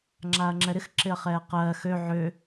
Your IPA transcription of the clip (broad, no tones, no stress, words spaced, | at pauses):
ŋ͡ǁaːɐ̯ŋ͡ǁɛɾɪx ǁɪɐ̯χɛːqɜː xø ʕø